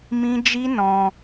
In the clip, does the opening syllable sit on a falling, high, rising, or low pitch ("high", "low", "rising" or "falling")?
high